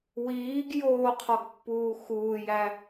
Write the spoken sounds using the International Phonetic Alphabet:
w iː ɡ j oː qʰ ɒ ɡ pː uː x uː j æ

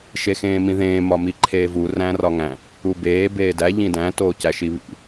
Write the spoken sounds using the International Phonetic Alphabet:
ʃ e x ẽː m ĩ ð ẽː m ɒ m i ǃʰ eː v u r æ̃ r ɒ ŋ æ̃ | u b eː b eː d æ ʎ ĩ d æ̃ t oː c æ ʃ i β ḭ

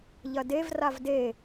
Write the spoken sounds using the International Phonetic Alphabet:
ʎ ɐ d e v r a v d e

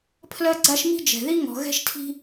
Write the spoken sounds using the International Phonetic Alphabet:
pʰ l ɜ˥ ɡ͡ǀ a˥ ʃ m i̤˥ d͡ʒ ɛ̤˧ ð i˥ ŋ ɔ̤˧ ɣ ɛ̤˥ ʃ tʰ i̤˥

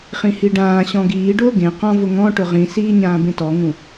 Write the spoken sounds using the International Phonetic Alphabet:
χ ĩ h i ɖ ãː ɕ ɔ̃ ɡ iː ɖ ʊː ɡ ẽ q ɔ̃ v ʊ ŋ ɔ̃ ʈ ʊ ʁ ĩ s iː ɲ ãː b ẽ t ɔ ŋ ũ

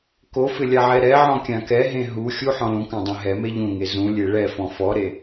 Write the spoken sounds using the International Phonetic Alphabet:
k o f ɪ lʲ a ʕ ɛ ɾ ɛ ʕ ɔ̃ kʲ ã k ɛ ɦ ẽ ɦ u xʲ u ħ ɔ̃ l ũ k ã dˤ ẽ ɦ ɛ m e ʎ ũ ŋ e z ũ lʲ e ɭ ɛ f ɔ̃ f ɔ ɾ e

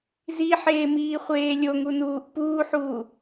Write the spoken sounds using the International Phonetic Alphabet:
z i ħ eː m iː χʷ eː lʲ o ŋ u n uː ʔ p uː ħ uː

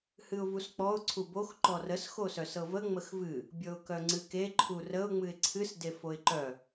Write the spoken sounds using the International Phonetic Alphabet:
h ɨ ʊ̯ v u s k͡p ɔ ʊ̯ ǀʰ u b o x ǃ ɔ r ə s x o s œ s ɤ v ə ŋ͡m ə x v ɨ | bʲ ɤ ʊ̯ k œ ŋ͡ǀ ɨ k e ǃʰ u r ə ʊ̯ ŋ͡m ɨ ɪ̯ ǀʰ ɨ s d e f o ɪ̯ ǃ œ

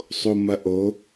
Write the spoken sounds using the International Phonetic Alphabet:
sˤ o m ɐ ʔ o

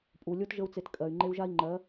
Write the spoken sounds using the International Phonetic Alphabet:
pʼ u˨ lʲ o˦ t ʒ ə˦ u̯ t͡s e˧ t kʼ ɜ˨ y̯ ŋ͡ǃ e˧ u̯ ʒ a˦ i̯ ŋ͡ǃ ɜ˨˦

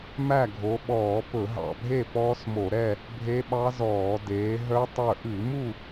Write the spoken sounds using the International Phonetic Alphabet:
m æ˥˨ ɡʱ o˨˦ ɓ ɔː˧˩˧ p ɵ˧˩˧ ɦ ɑ̰˧˩ bʱ e˥˨ p ɔː˦˥ s m o˧˩˧ ɾ ɛ˥˨ | bʱ e˦˥ ɓ ɑ˦˥ z ɔː˧˩˧ d eː˨˦ ɦ œ˦˥ tˤ œ˧˩ ʔ ʉ˧˩˧ m u˥˨

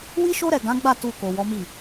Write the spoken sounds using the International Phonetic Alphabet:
w i˦ ʃ o˦ ɾ ɛ˦˨ ɡ ã˨˦ ɡ͡b a˦˨ t u˧ k o˨ w ɔ˨˦ m i˦˨

